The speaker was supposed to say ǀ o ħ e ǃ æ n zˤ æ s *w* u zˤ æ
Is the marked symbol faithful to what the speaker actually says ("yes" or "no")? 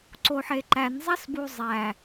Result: no